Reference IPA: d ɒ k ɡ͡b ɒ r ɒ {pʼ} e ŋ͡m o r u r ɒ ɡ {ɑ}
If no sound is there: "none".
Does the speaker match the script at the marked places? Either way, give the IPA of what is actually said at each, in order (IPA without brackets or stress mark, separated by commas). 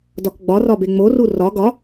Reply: b, ɒ